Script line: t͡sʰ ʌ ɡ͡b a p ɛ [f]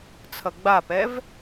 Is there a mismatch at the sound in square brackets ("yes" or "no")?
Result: yes